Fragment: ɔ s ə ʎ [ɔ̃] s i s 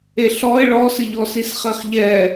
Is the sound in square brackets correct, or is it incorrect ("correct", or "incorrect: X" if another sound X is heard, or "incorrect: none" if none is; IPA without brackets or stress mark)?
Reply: incorrect: ɔ